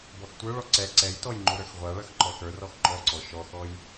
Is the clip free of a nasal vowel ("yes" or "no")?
yes